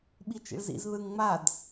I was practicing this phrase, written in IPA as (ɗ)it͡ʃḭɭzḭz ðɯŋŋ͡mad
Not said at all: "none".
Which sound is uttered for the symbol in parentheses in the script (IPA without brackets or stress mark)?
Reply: ɓ